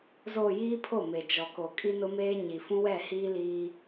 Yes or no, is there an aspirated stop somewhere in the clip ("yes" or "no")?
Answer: yes